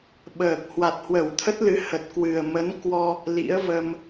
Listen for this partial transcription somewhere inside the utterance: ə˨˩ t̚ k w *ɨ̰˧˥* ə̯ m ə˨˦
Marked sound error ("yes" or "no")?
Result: yes